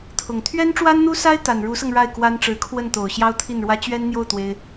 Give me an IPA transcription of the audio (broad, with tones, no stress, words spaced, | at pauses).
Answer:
t̪ʰʊ˨˩ŋ t̪ʰɥɛ˥nʈ͡ʂwa˥nn̪u˥sa˥ɪ̯ t̪a˨˩nɻu˧˥sɤ˧ŋ ɻa˥˩ɪ̯kwa˥nʈ͡ʂɻ̩˧˥ kʰwə˥˩nt̪o˨˩ʊ̯ ɕjɑ˥ʊ̯t̪ʰi˥˩nɻwä˥ t͡ɕɥɛ˥nn̪jo˥˩ʊ̯ t̪we˥ɪ̯